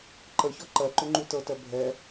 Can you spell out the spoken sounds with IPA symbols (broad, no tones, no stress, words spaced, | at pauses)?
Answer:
ǃəçɔ ǃɜǃʏ ŋ͡ǃutɤtɜ bʱɛ